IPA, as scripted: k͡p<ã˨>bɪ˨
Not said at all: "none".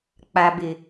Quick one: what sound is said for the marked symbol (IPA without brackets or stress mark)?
a˨